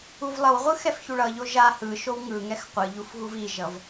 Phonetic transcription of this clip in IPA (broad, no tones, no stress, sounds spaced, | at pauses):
u v lˠ ʌ w ʁʷ ɯ x ɛ f ç u ɭ ʌ ʎ o ʒ a h ɯ ʃ o w ŋ ɯ ŋ ɛ x qʷ ɯ ʎ u f ɣ u v i ʒ ʌ v